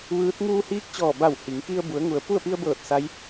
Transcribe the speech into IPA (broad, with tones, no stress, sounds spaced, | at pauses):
ʋ ɯː˧˥ t̚ ŋ uː˧ h iː˧˥ k̚ t͡ɕ ɔː˧˩ b a˧˩ w h i˩˧ ŋ k i˧ ə̯ b u˩˧ ə̯ ŋ u˩ ə̯ p u˥˨ ə̯ p i˧ ə̯ b ɤː˧˩ t̚ s a˧˥ j